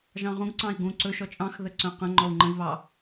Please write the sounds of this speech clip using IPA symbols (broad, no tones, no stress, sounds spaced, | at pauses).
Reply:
ʒ ɑ̃ ʁ ũ ɡ ǀ ɑ̃ i̯ ɡ ũ ǀ ɵ ʃ ɔ t͡ʃʼ ɑ̃ x ð ə ǀ œ̃ q ə̃ ŋ͡ǃ ɔ u̯ ŋ͡ǃ ə̃ i̯ β ɑ